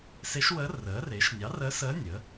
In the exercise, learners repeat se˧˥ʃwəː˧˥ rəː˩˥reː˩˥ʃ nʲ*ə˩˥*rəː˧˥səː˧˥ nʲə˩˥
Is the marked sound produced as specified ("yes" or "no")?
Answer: no